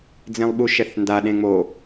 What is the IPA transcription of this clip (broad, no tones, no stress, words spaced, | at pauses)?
d͡zẽlˠɓuʃɛθnda ɗẽŋ͡mo